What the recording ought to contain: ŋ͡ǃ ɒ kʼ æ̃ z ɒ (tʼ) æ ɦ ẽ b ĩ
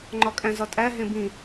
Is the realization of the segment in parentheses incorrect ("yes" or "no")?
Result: no